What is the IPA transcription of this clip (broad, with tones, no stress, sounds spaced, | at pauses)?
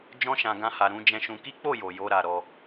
d͡ʒ ɔ̃˦ ʃ ã˧ ɡ ã˦ h a˧ ɾ ũ˧ d͡ʒ ɛ̃˧ ʃ ũ˧ k i˦ k͡p o˦˨ j o˨ j o˧ ɾ a˨ ɾ ɔ˧